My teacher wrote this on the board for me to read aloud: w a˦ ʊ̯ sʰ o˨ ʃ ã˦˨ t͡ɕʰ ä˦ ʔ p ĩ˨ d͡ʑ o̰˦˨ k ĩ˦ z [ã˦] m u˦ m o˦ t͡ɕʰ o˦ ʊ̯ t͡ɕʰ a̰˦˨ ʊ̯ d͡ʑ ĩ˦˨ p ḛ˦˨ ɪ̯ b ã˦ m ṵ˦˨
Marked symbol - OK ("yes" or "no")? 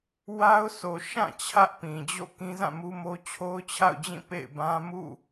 no